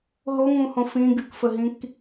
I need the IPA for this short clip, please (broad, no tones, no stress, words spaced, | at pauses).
ɦoŋũhõ fĩ ɡɨkfəɦĩk